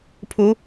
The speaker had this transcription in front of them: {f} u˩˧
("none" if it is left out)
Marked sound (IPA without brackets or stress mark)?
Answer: pʰ